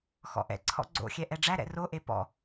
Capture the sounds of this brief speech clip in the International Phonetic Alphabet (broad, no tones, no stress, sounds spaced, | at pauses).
x ɔ̰ ʔ ɛ̰ ǀʰ ɔ̰ ɡ͡ǀ o̰ xʲ ɛ ʔ ɛ ɖ͡ʐ æ ɾ ɛ̰ r o ʔ e p ɔ̰